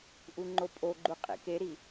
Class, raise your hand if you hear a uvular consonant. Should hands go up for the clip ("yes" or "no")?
yes